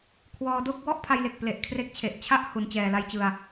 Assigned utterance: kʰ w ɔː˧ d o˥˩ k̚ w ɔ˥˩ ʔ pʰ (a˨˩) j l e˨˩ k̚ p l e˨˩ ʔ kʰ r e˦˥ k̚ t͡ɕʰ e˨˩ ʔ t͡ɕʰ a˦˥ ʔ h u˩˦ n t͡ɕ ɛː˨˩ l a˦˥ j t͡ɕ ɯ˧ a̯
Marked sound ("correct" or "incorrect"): incorrect